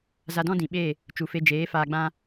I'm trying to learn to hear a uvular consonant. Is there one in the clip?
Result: no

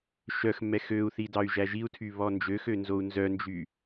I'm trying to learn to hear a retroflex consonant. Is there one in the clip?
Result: no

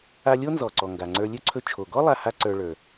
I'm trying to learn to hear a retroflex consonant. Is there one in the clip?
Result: yes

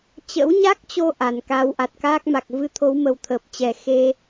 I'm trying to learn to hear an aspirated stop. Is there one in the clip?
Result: yes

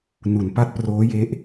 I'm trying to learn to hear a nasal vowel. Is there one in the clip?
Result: no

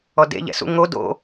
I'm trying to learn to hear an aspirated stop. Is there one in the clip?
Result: no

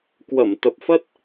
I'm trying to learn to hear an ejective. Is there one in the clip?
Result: no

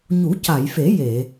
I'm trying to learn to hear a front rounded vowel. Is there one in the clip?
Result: no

